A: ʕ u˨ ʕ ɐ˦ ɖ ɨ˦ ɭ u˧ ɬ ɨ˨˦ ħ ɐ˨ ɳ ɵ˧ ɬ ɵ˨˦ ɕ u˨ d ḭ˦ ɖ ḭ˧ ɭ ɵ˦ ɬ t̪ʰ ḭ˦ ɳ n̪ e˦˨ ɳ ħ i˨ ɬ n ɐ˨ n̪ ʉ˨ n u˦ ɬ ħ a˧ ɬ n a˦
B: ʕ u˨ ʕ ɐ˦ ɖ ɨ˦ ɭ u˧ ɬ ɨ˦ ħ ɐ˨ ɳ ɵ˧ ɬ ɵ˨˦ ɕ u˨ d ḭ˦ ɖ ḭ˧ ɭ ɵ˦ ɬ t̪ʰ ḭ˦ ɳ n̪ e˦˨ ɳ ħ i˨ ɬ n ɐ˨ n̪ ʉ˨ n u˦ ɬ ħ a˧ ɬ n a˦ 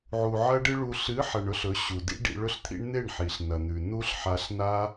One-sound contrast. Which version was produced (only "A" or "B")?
A